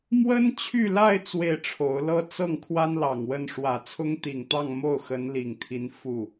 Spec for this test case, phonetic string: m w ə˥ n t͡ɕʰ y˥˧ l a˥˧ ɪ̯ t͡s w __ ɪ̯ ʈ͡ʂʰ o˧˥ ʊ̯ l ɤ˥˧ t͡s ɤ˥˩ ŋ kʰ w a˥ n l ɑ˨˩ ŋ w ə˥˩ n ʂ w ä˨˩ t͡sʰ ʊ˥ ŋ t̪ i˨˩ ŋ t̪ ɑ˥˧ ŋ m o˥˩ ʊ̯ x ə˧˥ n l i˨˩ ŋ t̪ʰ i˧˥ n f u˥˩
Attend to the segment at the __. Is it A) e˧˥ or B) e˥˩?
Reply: B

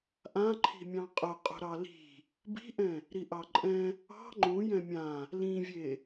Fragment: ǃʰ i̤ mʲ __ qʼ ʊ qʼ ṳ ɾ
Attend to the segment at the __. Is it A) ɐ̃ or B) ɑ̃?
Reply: B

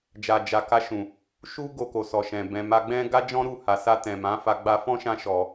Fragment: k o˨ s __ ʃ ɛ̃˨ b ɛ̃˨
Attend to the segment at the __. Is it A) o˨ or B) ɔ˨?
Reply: B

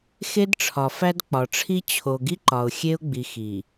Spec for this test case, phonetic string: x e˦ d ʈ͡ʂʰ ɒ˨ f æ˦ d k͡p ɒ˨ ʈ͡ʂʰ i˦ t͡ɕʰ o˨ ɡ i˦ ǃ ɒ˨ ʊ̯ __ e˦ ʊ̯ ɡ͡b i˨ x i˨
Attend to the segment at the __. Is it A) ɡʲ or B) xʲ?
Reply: B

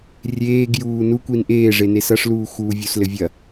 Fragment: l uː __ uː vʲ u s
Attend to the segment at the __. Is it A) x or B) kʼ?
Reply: A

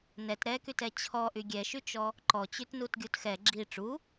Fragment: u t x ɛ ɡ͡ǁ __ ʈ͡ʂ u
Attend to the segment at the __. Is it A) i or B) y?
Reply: A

